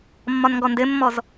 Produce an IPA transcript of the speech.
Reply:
mː ɒ n ŋ ɡ ɔ n d ɘ mː ɔ z

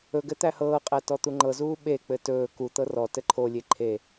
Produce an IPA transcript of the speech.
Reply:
ɵ ɡ ɘ t̪ æ h ɤː qʼ æ t ɔ t̪ u ŋ͡ǃ ɤ z uː ɓ e k͡p ɘ t ɵː k u t̪ ɤ r ɔ t ɘ ǃʰ o lʲ e ǃʰ e

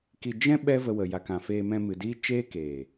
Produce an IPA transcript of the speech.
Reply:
k i˧ d͡ʒ ɛ̃˦ ɓ ɛ˦ v ə˧ w ə˨ j a˨ k ã˨ f eː˧ m ɛ̃˧ m ɨ˨ d i˦ t͡ʃ eː˦ k eː˨

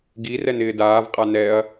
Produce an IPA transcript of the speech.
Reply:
ɡ i r ɛ n ɪː d aː v qʼ a n ɛ ɐ̯

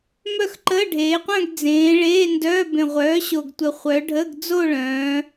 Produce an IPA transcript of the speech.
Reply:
m œ˥˩ x ǃ əː˧˥˧ ɖʱ eː˩˧ qʷ œ̃˥˧ ɡ d͡z ẽː˩˧ ɭ eː˧˥˧ n d œː˧˥˧ b ẽ˨˩ ʁʷ œː˩˥ ɕ o˨˩ ɡ tʷ ə˨˩ χʷ œ˩˧ ɖʱ ə˧˥˧ ɡ d͡z o˥˧ ɭ œ̃ː˩˧

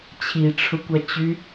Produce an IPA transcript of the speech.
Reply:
t͡ɕʰ i ʈ͡ʂʰ ʊ kʷ a t͡ɕ y

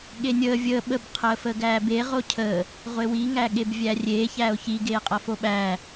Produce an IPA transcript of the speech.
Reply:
ɠ e nʲ əː vʲ əː ɓ ə b qʰ əː f əː ɡ æː b e ʁ o cʰ əː | ʁʷ e w i ŋ æ ɠ e b vʲ æ rʲ eː ç æː o̯ ç i ɡ eː qʼ ʌ f o ɓ æː

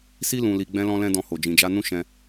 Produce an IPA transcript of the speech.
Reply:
s i˦ l ũ˧ l i˧ ɡ͡b ɛ̃˧ l ɔ̃˧ l ɛ̃˦ d ɔ̃˧ h o˨ d͡ʒ ĩ˨ d͡ʒ a˧ n ũ˦ ʃ ɛ̃˧

